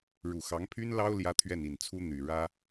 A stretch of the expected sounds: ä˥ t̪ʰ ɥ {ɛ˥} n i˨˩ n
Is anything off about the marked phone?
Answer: yes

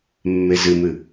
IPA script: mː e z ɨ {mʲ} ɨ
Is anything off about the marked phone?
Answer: yes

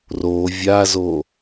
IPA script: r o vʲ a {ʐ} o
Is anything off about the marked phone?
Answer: yes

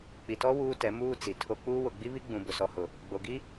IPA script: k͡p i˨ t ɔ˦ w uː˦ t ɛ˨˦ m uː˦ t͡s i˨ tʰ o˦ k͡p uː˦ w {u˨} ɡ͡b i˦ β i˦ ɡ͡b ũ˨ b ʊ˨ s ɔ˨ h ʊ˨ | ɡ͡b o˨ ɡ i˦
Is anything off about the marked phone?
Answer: yes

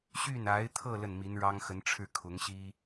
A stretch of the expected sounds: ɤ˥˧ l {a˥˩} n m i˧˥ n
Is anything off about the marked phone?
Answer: yes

